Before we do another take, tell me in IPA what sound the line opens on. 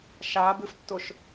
ʃ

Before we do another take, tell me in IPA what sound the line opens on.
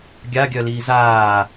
ɡʲ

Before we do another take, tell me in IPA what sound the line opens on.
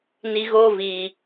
n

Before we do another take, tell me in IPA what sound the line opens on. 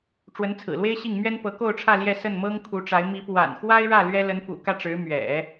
ʈ͡ʂ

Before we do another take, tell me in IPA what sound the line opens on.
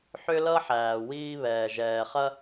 ħ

